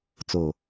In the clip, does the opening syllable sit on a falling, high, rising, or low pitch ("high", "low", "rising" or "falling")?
low